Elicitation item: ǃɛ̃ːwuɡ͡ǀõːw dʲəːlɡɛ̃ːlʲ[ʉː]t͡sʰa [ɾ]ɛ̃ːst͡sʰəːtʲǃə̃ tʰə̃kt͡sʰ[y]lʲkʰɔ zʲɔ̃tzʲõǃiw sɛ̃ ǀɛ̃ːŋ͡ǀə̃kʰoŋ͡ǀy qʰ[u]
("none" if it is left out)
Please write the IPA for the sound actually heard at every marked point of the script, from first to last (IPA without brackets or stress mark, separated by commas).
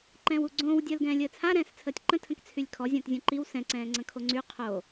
əː, ɾ, y, o